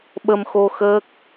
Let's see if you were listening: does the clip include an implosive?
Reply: yes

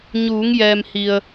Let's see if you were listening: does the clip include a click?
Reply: no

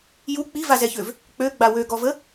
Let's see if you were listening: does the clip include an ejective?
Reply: no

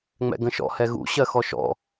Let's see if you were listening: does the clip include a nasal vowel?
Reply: yes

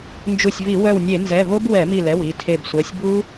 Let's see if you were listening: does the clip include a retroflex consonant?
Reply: no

